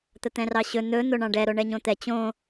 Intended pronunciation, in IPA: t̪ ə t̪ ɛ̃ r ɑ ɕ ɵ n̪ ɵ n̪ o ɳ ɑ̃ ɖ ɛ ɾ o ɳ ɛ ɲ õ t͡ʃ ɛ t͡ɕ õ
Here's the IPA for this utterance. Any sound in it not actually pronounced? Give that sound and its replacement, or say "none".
t͡ʃ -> t̪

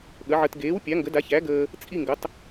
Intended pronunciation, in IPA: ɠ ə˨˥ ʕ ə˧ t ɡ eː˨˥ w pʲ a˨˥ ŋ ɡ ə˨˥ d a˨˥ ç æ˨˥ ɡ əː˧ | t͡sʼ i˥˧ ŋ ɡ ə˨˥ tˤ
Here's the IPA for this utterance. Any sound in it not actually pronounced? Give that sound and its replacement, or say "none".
none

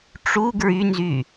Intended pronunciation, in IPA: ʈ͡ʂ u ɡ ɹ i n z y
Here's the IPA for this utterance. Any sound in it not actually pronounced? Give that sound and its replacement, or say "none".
i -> y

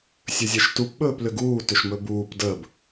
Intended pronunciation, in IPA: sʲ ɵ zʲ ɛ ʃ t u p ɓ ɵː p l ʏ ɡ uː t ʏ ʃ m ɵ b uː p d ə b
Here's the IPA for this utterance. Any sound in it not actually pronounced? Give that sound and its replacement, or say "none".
none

